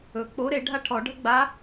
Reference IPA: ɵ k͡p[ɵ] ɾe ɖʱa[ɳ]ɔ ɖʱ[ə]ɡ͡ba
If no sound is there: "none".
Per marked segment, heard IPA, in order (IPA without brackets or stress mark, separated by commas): o, ʈʰ, ə